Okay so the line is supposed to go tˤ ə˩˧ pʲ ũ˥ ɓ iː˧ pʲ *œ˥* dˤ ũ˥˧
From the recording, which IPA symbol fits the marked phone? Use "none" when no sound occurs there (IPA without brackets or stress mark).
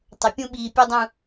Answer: œ˥